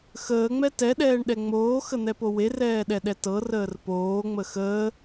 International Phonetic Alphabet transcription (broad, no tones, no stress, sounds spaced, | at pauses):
x əː ŋ͡m ɛ t ɛ ɗ ɛː ɳ ɗ ɛ ŋ͡m oː x ə n̪ ɛ p o w e r ɛː ɗ ɛ ɗ ɛ t ɤ r əː r p oː ŋ͡m ə x əː